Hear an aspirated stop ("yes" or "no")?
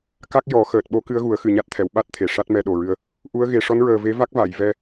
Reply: yes